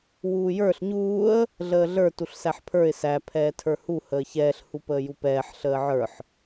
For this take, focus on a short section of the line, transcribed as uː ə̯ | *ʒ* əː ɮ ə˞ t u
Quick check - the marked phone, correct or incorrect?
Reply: incorrect